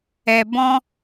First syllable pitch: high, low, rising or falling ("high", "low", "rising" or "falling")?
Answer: low